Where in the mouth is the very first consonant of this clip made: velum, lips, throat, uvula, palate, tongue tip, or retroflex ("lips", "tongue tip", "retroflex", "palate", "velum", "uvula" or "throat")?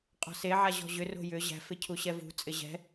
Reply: uvula